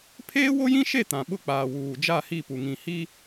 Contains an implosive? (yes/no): yes